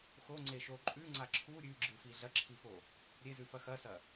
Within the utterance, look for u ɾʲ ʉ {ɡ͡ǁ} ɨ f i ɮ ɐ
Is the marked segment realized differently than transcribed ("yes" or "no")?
no